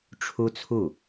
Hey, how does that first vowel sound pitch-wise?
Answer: high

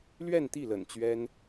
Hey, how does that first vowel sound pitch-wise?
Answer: falling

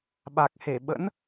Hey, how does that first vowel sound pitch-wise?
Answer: low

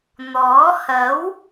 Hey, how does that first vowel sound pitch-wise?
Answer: rising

